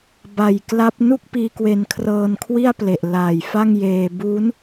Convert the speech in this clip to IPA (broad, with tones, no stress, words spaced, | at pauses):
ba˨˩jkla˦˥p̚nu˥˩k̚piː˧ kwe˧nkʰrɤː˧nkʰwi˥˩a̯ ple˨˩ʔlaː˨˩jfa˥˩ŋjeː˧ bu˦˥n